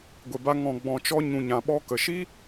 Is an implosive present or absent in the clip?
present